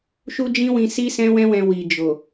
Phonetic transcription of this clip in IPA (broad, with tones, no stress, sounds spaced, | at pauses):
ʃ u˦ d͡ʒ ĩ˦ w ĩ˧ s i˦ s ɛ̃˦ w ɛ̃˦ w ɛ̃˧ w i˨ d͡ʒ o˨